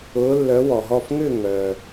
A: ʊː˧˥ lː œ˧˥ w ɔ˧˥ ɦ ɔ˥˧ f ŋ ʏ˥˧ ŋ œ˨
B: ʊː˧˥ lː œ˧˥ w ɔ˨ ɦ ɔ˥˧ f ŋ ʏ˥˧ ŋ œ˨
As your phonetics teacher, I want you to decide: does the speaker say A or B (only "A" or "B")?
B